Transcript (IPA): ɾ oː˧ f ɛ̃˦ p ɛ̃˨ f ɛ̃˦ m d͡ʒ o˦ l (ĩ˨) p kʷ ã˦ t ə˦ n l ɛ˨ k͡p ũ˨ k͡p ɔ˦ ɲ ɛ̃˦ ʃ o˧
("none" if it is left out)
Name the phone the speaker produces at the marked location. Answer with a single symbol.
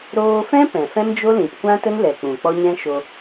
ĩ˨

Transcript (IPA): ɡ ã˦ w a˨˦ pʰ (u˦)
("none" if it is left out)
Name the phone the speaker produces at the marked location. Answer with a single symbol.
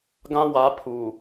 u˨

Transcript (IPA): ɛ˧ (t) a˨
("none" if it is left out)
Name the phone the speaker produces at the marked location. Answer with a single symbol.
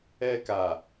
k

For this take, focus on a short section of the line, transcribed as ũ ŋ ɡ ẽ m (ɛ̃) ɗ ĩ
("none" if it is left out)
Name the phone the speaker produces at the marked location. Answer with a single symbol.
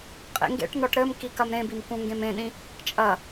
ẽ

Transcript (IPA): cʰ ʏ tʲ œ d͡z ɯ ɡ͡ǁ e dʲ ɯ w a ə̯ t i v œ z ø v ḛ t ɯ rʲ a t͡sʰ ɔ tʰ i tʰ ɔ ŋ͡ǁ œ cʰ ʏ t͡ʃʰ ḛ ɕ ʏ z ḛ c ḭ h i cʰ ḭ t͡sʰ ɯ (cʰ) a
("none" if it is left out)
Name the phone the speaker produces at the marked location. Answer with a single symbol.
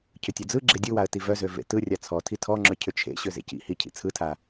tʰ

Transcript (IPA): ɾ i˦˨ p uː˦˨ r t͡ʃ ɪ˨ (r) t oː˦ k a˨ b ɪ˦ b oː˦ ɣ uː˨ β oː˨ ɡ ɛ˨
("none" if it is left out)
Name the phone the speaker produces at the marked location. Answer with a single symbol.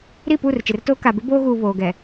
r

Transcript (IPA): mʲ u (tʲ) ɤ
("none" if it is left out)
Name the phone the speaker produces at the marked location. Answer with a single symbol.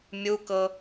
k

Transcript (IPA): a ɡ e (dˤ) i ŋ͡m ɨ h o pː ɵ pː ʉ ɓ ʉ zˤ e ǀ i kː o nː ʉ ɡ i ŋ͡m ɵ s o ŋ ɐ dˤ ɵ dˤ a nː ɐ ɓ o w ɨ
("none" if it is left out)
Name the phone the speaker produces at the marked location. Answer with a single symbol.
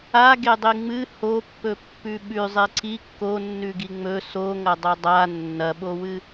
dˤ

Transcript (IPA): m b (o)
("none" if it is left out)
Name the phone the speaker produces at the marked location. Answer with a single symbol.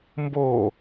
o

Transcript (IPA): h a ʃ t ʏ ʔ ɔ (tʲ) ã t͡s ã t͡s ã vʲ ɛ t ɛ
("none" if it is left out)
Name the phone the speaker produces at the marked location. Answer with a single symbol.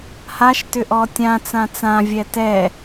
tʲ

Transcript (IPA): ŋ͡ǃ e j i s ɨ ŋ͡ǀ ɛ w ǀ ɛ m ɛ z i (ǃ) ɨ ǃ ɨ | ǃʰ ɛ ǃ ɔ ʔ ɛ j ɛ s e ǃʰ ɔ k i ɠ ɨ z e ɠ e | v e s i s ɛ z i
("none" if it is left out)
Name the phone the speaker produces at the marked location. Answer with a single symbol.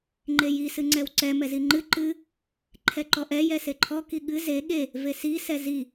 ŋ͡ǃ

